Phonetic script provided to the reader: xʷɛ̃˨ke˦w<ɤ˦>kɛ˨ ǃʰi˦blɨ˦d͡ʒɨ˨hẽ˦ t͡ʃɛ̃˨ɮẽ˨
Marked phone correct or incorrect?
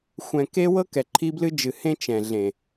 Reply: correct